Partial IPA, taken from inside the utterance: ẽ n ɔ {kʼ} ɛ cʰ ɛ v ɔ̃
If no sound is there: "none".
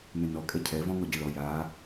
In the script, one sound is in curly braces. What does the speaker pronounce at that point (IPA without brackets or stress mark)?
kʼ